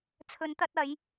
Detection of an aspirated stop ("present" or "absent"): present